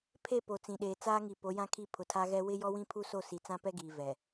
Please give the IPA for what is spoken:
pʰe˦˨ po˨ t͡sĩ˨ɗeː˨t͡saː˦ŋi˨ po˨˦jã˦kʰi˦˨ pʰʊ˨tʰa˦ɣɛ˦ wɪ˦jɔ˦wĩ˦ pʰu˦so˦˨ si˨t͡sã˦pɛ˦ɡiː˨ vɛ˨

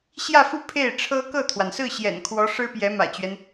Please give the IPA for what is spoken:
ɕjä˥˧fu˥˧ pʰe˥˩ɪ̯ʈ͡ʂʰɤ˥ kɤ˥˩t̪ʰwa˩nsɹ̩˥˩ɕjɛ̰˨˩n kʰwɔ˧˥ ʂɻ̩˥pjɛ˧˥ mä̰˨˩t͡ɕɥɛ˦n

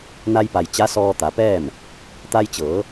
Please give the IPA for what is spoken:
na˧jpa˩j t͡ɕa˧˥sɔː˧t̪a˩˧pɛː˥˨m | t̪a˧jt͡ɕɤː˩˧

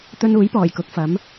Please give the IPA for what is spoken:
t̪ɵ˧nuː˨˥jpɔː˨˩j kʊ˨˥k̚fɐ˨˥m

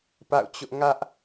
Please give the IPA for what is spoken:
pa̰˦˨ʊ̯t͡ɕʊ˦ʔ ŋä˦ʔ

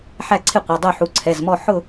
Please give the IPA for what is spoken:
ħæ˥˨ǀʰɪ˥˨qʷɑ˩˧˩dˤu˥˨ ħu˩˧˩ǀʰɛ˩˧˩zmɔ˥˨ ħʊ˥˨

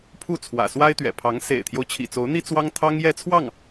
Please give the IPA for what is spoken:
pʰu˥˩t͡sʰwä̰˨˩swa˥ɪ̯ t̪ɥɛ̰˨˩pʰɑ˧˥ŋ sḛ˨˩ɪ̯t̪ʰjo˦ʊ̯ t͡ɕʰḭ˨˩t͡so˧˥ʊ̯n̪i˥ t͡swɑ˥ŋ t̪ʰɑ˥ŋjɛ˥˧t͡sʰwɑ˥˩ŋ

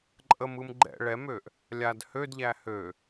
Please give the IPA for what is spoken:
ǃʼəmɯm ɡ͡ǃɛ̰ ɭɛmøʔ | lʲad hødʎæ hø

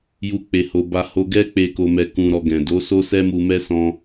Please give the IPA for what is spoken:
ju˦ k͡pe˧ho˧ ba˦ho˦ ɡɛ˦k͡pe˧ ko˧mɛ˧ kũ˧ɾɔ˧ ɡɛ̃˨do˨˦so˦sɛ˦ mu˧mɛ˦sɔ̃˧

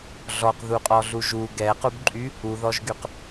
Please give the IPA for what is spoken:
ɮɔqðuqʼɔɮu ʒu ɡɛqubǃʼy | uðɔʒɡyq

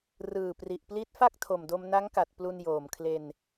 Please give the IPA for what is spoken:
rɯː˨˩pri˨˩ʔpli˦˥t̚fa˥˩k̚ tʰo˨˩mdo˧mna˦˥ŋka˨˩t̚ plu˧njoː˨˩mkʰle˧n

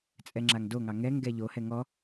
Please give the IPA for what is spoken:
t͡sʼɛŋ͡ǁaŋdoŋɑ ŋɛŋ ɡɛʎohɛ ŋɔ

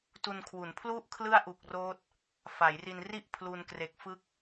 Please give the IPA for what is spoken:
tu˧nkʰwu˩˦npʰlu˥˩ʔ kʰlɯ˥˩a̯ ʔu˨˩k̚roː˦˥t̚ | fa˩˦jri˧nri˥˩ʔ pʰlu˧nkre˨˩k̚fɯ˦˥k̚

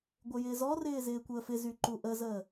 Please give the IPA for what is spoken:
ɡʷɪjɪːzɔrɪː zɪːkʷəːfɪzy ǃuʔəzəː

